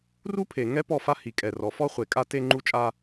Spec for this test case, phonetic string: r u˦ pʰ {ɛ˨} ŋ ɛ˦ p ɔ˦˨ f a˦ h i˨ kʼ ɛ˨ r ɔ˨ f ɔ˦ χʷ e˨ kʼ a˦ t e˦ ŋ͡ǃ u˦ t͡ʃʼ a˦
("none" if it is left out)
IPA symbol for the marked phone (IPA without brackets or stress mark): e˨